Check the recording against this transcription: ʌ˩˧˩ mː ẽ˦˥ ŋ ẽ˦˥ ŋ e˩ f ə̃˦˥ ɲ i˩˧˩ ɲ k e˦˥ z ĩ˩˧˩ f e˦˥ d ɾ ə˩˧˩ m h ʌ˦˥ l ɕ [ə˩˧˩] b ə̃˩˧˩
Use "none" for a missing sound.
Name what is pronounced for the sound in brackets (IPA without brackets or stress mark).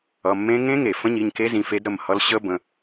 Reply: ə˦˥